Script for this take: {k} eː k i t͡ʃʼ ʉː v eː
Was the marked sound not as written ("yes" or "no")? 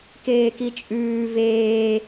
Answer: no